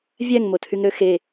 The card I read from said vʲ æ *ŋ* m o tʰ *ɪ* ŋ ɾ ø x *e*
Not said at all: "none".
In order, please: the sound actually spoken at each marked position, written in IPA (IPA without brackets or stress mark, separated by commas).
ŋ, y, e